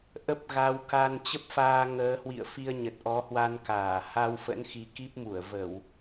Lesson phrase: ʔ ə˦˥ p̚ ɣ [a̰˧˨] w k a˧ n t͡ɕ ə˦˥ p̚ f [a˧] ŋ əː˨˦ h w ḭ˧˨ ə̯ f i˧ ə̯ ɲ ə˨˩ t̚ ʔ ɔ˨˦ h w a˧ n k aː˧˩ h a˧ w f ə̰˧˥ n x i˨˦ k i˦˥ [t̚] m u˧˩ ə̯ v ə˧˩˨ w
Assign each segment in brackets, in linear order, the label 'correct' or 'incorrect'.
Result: incorrect, incorrect, incorrect

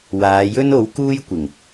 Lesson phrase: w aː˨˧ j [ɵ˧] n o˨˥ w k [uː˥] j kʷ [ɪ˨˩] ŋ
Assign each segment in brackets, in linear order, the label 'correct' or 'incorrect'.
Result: incorrect, correct, correct

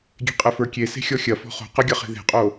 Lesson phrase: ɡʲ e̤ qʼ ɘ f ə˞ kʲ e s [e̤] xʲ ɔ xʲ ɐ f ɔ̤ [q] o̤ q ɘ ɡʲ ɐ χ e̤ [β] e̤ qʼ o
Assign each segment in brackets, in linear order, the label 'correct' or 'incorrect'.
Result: correct, incorrect, incorrect

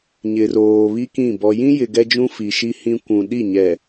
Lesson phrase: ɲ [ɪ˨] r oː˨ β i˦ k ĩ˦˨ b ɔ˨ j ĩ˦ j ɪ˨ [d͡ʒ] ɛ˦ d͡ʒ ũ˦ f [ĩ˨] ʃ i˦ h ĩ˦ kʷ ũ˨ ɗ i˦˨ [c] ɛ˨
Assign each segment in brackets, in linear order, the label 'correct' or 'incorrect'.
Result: correct, incorrect, incorrect, incorrect

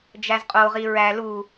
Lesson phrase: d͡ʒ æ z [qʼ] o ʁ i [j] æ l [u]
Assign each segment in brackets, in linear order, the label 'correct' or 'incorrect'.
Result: correct, incorrect, correct

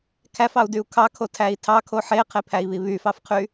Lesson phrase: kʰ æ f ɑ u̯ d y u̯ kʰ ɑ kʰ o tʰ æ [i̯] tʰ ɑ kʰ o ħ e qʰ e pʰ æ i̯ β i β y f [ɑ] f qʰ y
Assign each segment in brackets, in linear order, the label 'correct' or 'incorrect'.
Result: correct, correct

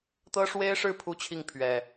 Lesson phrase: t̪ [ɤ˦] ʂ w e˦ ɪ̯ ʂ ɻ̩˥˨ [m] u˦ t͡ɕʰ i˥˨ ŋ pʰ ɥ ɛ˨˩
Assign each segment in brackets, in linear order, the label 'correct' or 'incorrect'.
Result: correct, incorrect

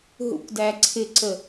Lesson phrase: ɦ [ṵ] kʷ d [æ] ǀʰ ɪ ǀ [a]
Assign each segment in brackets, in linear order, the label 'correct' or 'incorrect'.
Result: correct, correct, incorrect

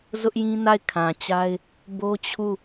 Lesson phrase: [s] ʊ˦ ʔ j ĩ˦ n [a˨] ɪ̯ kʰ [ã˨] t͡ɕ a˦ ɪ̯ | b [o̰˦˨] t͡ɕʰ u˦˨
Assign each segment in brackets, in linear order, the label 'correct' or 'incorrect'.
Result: incorrect, incorrect, correct, incorrect

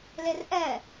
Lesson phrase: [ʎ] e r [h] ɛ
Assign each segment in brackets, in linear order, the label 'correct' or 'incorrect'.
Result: incorrect, incorrect

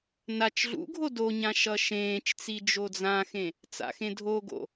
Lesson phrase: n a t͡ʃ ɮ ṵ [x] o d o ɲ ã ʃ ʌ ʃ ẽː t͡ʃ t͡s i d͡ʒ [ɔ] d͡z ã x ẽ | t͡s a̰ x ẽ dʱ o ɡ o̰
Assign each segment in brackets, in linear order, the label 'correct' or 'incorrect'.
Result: incorrect, incorrect

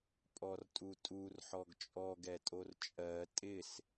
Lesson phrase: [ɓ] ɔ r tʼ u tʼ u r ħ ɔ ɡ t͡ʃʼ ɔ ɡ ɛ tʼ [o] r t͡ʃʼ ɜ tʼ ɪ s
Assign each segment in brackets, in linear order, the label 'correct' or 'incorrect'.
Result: incorrect, correct

